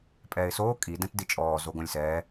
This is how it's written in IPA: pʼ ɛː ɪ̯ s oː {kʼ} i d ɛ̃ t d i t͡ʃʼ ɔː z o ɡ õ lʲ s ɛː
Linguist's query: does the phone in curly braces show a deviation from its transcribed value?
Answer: no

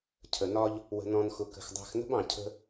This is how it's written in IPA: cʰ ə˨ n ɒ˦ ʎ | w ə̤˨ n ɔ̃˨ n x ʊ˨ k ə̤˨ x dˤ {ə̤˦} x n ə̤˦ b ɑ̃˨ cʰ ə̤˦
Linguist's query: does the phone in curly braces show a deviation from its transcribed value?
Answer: yes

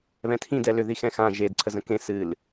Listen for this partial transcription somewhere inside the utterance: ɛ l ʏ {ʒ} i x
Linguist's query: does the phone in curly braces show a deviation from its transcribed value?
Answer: yes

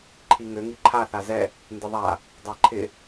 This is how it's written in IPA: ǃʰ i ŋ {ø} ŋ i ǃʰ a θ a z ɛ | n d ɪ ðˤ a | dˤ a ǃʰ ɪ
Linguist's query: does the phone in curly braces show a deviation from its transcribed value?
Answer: no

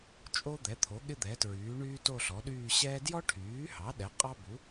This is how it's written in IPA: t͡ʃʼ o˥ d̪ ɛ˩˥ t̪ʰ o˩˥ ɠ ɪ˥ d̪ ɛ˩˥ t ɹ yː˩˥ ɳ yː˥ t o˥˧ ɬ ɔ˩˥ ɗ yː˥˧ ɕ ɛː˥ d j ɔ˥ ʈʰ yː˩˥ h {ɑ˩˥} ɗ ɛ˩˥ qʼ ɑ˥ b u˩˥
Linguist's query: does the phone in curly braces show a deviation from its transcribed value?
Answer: no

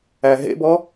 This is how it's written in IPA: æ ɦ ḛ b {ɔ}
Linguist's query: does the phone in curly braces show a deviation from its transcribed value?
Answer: no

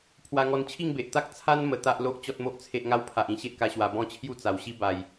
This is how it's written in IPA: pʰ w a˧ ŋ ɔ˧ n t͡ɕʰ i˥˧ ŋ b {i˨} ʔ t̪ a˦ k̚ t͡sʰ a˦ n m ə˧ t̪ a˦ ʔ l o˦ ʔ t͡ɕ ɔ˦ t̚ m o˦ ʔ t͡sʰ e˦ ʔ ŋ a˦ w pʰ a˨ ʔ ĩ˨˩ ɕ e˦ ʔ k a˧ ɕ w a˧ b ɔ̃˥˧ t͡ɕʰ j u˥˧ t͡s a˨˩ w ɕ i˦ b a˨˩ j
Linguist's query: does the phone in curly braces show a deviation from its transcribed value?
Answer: yes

